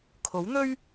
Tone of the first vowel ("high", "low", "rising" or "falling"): rising